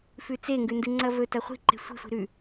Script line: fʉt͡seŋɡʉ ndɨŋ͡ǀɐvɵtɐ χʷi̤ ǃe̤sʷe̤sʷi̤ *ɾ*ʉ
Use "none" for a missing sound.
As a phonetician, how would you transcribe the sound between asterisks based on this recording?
ɾ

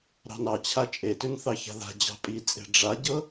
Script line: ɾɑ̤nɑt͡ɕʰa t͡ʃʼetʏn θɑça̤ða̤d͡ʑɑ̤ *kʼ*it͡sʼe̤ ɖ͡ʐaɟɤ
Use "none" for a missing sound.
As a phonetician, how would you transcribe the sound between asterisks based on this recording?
pʼ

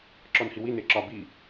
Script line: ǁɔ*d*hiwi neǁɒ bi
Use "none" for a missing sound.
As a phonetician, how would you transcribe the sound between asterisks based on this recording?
n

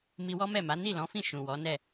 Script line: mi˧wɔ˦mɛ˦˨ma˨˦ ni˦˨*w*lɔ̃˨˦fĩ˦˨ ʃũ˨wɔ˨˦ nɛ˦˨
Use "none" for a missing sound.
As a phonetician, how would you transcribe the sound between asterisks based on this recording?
none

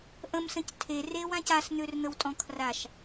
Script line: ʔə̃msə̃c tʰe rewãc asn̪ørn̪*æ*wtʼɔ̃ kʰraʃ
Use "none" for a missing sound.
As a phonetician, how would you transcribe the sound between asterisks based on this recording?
ə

